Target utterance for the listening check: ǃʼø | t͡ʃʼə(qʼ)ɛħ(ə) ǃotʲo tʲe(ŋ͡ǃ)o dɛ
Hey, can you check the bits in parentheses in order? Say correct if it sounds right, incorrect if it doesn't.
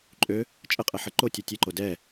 correct, correct, incorrect: ǃ

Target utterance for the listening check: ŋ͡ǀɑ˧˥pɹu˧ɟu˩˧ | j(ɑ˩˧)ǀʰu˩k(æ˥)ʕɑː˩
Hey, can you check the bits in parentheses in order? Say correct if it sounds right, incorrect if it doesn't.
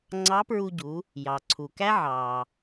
incorrect: ɑ˩, correct

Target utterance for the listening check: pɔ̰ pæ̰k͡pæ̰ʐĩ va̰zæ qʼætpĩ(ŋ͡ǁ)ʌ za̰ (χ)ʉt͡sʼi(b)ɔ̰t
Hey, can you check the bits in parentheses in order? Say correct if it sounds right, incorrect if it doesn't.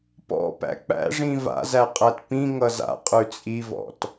incorrect: ŋ, incorrect: qʼ, incorrect: v

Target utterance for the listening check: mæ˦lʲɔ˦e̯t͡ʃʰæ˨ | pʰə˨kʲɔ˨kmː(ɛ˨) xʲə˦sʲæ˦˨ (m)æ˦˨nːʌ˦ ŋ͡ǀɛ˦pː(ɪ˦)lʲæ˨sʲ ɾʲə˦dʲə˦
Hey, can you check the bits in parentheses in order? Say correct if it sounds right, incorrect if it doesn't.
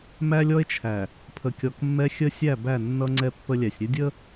incorrect: ɛ˦, incorrect: b, incorrect: ə˦

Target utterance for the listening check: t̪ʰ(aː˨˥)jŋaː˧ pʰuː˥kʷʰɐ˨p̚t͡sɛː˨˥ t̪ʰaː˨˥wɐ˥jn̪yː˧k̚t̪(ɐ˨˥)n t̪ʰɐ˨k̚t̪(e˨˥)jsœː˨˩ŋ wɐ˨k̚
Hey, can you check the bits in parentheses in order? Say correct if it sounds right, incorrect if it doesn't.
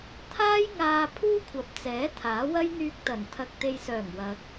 incorrect: aː˥, incorrect: ɐ˨˩, incorrect: e˨

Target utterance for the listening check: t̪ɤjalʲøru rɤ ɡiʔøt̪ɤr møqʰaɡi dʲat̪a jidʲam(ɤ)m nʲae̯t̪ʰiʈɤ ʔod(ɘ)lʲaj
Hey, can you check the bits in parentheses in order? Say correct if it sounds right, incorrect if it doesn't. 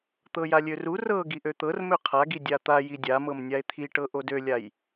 correct, incorrect: ø

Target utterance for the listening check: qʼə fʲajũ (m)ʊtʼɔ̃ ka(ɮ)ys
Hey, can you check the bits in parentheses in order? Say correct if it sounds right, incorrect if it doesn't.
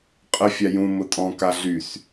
correct, correct

